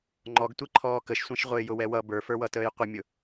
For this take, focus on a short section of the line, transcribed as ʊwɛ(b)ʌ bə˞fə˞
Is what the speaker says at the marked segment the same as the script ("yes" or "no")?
no